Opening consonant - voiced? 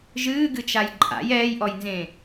yes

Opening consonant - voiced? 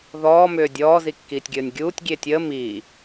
yes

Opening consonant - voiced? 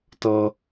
no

